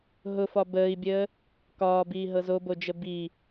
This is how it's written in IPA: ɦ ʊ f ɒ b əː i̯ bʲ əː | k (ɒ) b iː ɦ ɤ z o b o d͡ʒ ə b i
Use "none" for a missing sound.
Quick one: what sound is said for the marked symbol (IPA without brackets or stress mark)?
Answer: ɒː